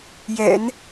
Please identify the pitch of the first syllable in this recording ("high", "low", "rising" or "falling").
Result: low